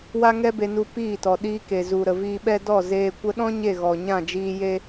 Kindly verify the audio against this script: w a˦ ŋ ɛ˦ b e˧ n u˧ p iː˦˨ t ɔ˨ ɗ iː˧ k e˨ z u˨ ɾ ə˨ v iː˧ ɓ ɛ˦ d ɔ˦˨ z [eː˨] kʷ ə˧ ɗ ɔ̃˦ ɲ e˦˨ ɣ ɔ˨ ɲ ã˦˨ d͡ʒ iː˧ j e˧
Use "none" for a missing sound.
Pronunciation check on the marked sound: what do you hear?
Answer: eː˧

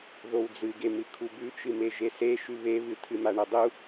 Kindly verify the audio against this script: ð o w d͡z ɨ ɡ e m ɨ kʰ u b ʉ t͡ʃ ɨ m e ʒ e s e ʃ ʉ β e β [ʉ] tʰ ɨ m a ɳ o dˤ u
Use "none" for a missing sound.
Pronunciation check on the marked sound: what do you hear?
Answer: ɨ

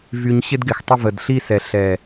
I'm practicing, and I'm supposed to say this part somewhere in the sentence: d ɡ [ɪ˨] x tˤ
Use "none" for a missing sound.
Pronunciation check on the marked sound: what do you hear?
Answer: ɪ˨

